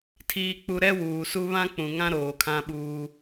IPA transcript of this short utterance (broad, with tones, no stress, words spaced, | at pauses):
tʰiː˨k͡pu˨ ɾɛ˦wuː˨su˦ βã˦k͡pũ˨ŋã˦ ɾoː˨kʰã˦ɓuː˦